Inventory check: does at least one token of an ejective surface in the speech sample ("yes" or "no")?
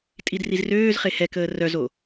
yes